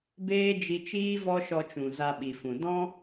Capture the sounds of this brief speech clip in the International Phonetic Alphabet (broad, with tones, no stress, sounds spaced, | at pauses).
b eː˦ d͡ʒ i˧ t͡ʃ iː˦ v ɔ˦ ʃ ɔ˧ t͡ʃ ũ˨ z a˧ ɓ i˨ f ũ˨ d ɔ̃˦